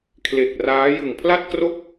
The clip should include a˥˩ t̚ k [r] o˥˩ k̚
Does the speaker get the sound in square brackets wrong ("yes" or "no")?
no